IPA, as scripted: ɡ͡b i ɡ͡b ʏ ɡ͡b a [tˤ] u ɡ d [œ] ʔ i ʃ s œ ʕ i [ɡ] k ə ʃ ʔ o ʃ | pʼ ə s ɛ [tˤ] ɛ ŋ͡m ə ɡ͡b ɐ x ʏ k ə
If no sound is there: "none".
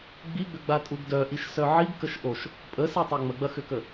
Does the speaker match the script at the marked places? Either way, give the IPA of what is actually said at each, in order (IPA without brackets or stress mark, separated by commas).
tʼ, œ, ɡ, tˤ